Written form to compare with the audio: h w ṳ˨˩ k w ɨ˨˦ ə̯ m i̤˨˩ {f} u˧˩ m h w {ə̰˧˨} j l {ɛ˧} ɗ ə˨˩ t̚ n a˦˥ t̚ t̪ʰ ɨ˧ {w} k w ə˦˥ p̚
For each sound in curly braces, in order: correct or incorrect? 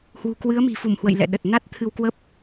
correct, correct, incorrect: ɛ̰˧˨, correct

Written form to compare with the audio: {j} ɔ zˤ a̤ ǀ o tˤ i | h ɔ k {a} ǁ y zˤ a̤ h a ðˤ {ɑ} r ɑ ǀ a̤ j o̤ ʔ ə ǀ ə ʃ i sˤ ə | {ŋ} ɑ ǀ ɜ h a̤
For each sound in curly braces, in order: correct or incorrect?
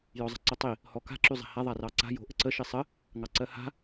correct, incorrect: a̤, incorrect: a, correct

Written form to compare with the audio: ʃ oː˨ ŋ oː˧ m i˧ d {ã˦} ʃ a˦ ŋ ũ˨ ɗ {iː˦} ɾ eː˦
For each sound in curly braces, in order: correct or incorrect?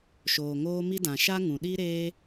incorrect: ã˨, incorrect: i˦

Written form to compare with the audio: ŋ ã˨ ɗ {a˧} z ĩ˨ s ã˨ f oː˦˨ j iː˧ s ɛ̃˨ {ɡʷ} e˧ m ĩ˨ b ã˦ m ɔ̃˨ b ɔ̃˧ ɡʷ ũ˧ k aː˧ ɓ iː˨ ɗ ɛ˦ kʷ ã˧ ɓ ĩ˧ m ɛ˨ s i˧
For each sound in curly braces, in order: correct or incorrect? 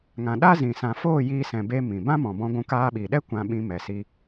incorrect: a˦, incorrect: b

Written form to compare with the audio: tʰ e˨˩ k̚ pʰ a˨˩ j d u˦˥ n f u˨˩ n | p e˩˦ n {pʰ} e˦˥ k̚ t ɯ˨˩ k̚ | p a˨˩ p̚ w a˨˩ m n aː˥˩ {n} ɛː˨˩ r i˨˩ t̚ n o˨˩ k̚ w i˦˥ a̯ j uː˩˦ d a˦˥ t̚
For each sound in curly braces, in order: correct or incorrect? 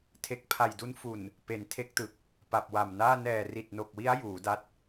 incorrect: tʰ, correct

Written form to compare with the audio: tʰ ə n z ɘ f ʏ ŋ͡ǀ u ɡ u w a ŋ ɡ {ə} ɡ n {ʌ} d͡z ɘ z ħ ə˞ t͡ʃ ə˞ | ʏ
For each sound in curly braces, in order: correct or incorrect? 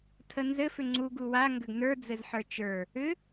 incorrect: ʏ, incorrect: ə˞

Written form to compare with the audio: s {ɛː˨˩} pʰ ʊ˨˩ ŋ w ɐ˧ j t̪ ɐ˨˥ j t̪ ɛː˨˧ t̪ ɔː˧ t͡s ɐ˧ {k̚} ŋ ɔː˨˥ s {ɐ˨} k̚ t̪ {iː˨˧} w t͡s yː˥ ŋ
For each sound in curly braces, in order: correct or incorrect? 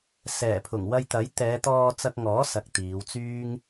correct, correct, correct, correct

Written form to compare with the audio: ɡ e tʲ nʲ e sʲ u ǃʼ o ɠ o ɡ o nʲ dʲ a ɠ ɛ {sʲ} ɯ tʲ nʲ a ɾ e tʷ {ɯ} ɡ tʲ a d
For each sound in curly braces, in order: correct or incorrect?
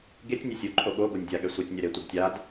incorrect: sʷ, correct

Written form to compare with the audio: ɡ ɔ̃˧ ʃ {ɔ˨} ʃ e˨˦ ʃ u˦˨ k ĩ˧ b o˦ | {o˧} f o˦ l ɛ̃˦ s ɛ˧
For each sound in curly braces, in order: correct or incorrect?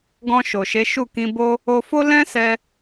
incorrect: o˨, correct

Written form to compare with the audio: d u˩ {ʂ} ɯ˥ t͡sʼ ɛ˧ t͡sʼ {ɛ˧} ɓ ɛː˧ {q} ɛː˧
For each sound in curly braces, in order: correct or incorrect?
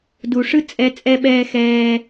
correct, correct, incorrect: x

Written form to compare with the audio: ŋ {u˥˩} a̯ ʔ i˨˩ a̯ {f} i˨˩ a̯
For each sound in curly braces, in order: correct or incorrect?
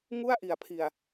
correct, incorrect: pʰ

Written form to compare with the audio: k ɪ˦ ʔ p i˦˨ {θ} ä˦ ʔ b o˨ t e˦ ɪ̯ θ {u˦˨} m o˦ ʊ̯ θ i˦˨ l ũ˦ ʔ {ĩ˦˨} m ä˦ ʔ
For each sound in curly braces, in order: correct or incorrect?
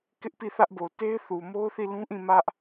correct, incorrect: u˨, correct

